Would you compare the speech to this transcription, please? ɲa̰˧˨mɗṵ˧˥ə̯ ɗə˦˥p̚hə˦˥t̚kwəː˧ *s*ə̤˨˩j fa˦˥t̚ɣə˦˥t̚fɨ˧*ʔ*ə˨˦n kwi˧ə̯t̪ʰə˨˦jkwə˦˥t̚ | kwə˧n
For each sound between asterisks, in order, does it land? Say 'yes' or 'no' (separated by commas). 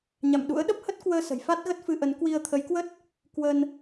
yes, yes